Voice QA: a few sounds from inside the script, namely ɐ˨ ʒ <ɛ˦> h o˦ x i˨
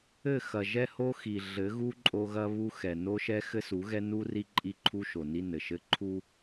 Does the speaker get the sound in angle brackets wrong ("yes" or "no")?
no